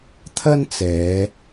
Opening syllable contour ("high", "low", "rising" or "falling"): high